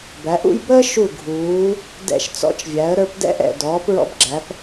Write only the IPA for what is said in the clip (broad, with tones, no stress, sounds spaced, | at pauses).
b æ˩˧ ʔ ṵ˥˧ j b əː˥ ʃ u˧˩ ɡʱ uː˩˧ | d ɛ̰˧˩ ʃ t͡s ɔ̰˧ t͡ʃ vʲ æ˩˧ ə̯ ɾ ə˞˧ p d ɛ̰˥ ʔ ɛ̰˧˩ d ɔː˩˧ p ɹ ɔ̰˧ b ɡ͡ǁ æ˩˧ p